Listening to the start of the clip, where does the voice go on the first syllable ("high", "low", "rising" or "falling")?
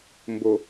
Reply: low